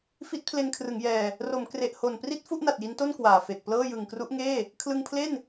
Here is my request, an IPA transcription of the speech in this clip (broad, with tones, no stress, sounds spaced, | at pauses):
f i˦˥ t̚ pʰ l e˧ n kʰ r ɯ˩˦ ŋ j ɛː˧ | r o˩˦ m k r e˨˩ ʔ h o˨˩ n p r i˥˩ t̚ f u˥˩ ʔ n a˨˩ t̚ j i˦˥ n t o˥˩ n k w aː˨˩ f e˨˩ k̚ p l ɤː˥˩ j ɯ˨˩ ŋ k r u˦˥ ʔ ŋ eː˥˩ | kʰ l ɯ˧ ŋ pʰ l e˥˩ n